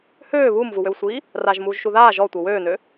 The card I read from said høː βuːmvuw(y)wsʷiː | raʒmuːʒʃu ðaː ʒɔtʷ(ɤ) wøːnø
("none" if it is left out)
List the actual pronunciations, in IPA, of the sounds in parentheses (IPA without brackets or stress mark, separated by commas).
ø, ɤ